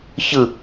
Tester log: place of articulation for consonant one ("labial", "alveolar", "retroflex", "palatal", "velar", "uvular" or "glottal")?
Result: palatal